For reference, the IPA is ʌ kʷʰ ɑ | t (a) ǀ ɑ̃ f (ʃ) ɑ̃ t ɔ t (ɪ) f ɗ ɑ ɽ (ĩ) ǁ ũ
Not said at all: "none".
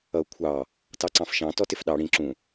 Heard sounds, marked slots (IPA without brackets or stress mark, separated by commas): ɑ, ʃ, ɪ, ĩ